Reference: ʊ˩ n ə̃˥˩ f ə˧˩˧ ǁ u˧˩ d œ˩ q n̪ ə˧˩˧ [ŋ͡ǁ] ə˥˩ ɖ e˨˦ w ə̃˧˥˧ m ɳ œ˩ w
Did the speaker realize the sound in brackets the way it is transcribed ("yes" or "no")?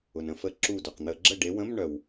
no